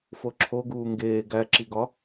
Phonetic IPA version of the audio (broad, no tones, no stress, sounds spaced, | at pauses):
f o ǁʰ o ɡ uː ŋ ɡ eː ɡ æ ǁ i ɡ ɒ